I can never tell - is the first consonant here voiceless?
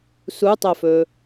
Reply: yes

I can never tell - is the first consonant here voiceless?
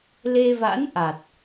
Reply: no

